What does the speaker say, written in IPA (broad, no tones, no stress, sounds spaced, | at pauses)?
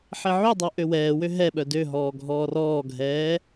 ħ e ʕ y dˤ o ʔ ø w ɛː w ø ɦ ɛ ɓ œ d ø ɦ ɔː ɡʱ ɔː r ɔː ɡʱ ɛː